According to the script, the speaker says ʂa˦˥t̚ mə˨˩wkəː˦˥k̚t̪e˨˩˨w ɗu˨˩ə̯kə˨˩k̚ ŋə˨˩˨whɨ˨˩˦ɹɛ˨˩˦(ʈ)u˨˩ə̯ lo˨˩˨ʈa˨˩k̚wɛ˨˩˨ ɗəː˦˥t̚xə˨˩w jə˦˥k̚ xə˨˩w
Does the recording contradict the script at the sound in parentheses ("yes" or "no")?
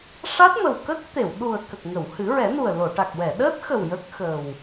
yes